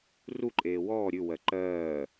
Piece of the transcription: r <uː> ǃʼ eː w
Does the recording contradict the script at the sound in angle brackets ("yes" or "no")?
yes